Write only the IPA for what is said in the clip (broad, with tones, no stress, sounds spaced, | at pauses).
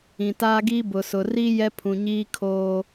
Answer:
ĩ˨ t aː˦ ɡ iː˦ b ʊ˨ s ʊ˨ r i˦ j ɛ˦ pʰ ũ˨ ɲ iː˦ kʰ oː˦